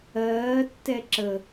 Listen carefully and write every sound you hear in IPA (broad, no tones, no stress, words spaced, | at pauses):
ɜːtːɛ ǁə